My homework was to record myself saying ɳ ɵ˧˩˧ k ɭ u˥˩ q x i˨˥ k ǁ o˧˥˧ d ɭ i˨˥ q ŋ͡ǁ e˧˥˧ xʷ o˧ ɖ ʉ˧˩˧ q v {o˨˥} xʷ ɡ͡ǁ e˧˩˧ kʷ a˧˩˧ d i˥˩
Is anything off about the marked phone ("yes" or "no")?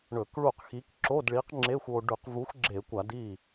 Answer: yes